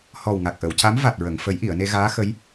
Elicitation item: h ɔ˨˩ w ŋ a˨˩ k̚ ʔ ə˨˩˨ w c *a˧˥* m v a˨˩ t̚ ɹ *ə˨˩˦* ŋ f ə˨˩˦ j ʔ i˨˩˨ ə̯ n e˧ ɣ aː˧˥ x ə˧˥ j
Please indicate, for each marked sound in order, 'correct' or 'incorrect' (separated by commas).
correct, incorrect